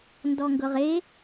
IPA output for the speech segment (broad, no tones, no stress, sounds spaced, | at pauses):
n d ɔ ŋ ɡ ɤ ʁ e